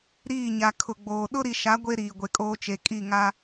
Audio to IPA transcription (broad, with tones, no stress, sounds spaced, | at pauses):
ɾ iː˦˨ ɲ a˨ kʰ ʊ˨ ɡ͡b oː˨ ɗ ʊ˦ ɾ i˨ ʃ a˨˦ ɡʷ e˦ ɾ iː˨ ɡʷ e˨ kʼ oː˦ t͡ʃ e˨ kʼ i˦˨ ŋ a˦